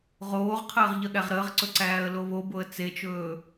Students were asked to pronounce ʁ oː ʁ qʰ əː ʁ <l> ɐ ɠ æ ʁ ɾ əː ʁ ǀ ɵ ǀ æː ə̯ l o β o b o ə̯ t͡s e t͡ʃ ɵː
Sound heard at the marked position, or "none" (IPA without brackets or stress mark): ʎ